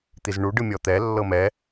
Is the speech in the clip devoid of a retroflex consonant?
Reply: no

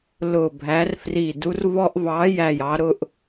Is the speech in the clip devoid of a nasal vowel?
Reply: yes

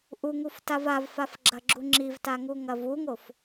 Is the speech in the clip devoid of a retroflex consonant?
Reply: yes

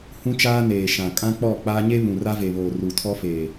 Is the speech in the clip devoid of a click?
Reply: yes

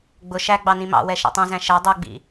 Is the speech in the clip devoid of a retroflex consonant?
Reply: yes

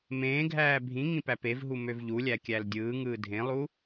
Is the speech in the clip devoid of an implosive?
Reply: yes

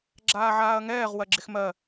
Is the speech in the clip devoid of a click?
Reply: no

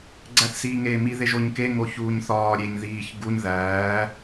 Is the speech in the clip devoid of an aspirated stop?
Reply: yes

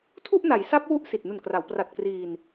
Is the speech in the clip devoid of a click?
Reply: yes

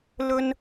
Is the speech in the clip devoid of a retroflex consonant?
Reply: yes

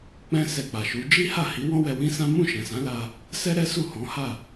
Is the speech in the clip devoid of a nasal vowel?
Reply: no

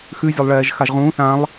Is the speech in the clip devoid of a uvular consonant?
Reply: no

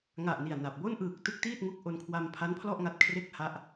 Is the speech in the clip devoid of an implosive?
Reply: yes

